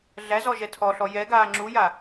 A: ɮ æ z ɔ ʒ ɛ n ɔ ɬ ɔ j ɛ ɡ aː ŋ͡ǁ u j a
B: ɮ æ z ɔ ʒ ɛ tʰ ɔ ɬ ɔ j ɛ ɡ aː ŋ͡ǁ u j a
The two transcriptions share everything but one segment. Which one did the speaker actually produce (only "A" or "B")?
B